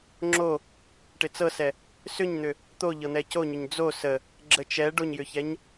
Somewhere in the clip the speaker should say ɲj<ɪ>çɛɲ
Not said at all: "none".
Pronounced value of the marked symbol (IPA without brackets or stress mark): ʏ